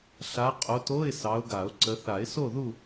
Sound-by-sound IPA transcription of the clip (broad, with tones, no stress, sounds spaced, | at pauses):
ɬ a˨˦ qʼ o˨˦ t o˧˥˧ ɪ̯ s ɑ˨˦ ʊ̯ ɡ a˨˩˦ ʊ̯ ǀ ə˨˦ θ a˨˩˦ ɪ̯ s o˥˨ ð u˥˨